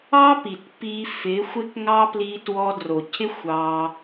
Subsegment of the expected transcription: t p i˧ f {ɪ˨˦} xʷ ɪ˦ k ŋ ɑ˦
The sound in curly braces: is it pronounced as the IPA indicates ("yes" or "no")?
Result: yes